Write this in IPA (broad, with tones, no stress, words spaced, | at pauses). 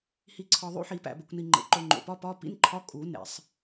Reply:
hi˨ǀʰɒ˨ ðˤṵ˧˥˧ħi˨˩˦pæ̰˨bḛ˨kʷ ni˨ŋ͡ǃḛ˩˥ǃo˨ ŋ͡ǃo̰˨pɒ˧˥˧pɒ˧˥˧ pḭ˧˥˧nǃʰɒ˧˥˧ kʼu˨˩˦ nḛ˨˩˦sˤ